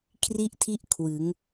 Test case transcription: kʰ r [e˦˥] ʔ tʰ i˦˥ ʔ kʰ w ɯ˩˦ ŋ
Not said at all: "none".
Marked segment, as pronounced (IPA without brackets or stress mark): i˦˥